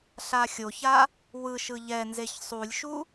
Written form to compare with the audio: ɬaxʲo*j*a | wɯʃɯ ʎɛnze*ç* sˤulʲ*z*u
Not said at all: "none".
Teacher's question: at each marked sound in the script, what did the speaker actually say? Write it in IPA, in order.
ç, ç, ʃ

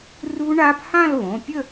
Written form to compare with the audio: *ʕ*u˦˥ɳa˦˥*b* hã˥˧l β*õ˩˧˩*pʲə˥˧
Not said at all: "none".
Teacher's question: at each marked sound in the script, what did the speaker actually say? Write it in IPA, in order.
r, b, õ˩˧˩

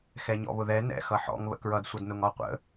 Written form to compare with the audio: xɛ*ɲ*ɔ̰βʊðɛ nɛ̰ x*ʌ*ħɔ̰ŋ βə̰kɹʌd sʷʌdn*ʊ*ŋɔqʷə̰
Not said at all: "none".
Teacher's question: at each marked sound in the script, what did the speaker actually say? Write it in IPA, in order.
ɲ, ʌ, ʊ

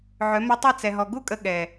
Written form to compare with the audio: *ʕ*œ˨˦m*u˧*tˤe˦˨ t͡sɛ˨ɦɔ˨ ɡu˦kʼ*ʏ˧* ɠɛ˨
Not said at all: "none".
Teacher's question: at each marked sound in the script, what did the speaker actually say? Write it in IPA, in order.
ʕ, u˧, ə˧

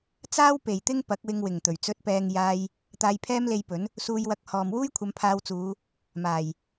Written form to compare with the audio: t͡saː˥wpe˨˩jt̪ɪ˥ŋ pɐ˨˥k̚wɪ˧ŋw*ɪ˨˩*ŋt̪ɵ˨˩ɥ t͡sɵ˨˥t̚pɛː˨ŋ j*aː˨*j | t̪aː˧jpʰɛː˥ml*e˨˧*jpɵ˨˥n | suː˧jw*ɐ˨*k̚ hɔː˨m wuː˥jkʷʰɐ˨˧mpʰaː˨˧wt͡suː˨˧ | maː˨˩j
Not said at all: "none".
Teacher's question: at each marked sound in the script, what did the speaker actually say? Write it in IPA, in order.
ɪ˨˩, aː˧, e˧, ɐ˧

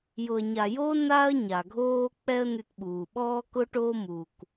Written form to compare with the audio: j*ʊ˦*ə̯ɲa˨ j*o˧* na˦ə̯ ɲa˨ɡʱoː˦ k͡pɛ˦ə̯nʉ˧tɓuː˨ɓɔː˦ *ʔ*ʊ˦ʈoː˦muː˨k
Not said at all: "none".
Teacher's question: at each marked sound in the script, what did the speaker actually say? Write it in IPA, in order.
ʊ˨, o˧, k

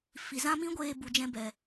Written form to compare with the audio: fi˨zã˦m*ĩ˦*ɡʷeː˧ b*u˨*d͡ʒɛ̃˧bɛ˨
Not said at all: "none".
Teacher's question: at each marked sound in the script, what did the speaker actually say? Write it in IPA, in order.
ĩ˦, u˨

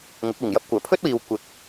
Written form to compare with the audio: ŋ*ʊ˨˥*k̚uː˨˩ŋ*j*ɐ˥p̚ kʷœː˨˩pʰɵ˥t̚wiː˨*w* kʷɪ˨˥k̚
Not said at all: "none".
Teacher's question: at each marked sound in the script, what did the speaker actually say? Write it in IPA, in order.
ʊ˨˥, j, w

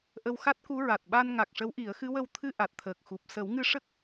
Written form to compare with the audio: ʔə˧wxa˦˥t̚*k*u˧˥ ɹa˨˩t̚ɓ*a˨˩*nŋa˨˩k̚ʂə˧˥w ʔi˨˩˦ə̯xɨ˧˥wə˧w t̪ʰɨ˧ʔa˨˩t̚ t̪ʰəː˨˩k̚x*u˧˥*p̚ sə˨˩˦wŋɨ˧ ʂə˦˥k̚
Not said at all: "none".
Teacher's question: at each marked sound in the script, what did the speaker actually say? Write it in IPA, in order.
k, a˧, u˨˩

